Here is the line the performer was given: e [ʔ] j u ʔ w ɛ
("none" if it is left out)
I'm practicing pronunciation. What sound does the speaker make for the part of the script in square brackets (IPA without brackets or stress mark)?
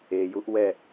none